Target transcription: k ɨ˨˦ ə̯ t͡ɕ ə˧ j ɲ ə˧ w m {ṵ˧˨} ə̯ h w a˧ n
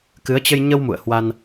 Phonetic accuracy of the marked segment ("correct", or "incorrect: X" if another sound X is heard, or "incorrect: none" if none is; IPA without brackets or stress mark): correct